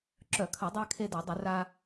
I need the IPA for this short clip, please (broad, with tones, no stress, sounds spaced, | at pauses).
ǁ œ˧˩˧ kʰ ɐ˧˩˧ dˤ a˧ kʰ e˧ d ɐ˧˩˧ dˤ ʏ˧˩˧ r a˧